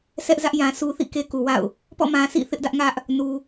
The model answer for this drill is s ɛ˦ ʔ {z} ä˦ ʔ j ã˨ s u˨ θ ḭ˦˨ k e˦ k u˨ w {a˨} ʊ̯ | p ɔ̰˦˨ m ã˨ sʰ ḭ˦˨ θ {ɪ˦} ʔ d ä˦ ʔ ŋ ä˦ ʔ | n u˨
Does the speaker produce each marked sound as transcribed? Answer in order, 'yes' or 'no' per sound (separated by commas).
yes, no, yes